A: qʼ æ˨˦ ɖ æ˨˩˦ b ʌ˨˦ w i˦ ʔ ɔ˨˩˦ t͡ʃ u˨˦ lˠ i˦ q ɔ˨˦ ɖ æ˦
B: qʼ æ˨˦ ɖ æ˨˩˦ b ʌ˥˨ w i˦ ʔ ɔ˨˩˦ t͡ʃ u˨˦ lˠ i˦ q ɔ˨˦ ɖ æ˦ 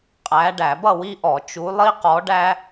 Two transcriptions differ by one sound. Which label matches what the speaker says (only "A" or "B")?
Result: B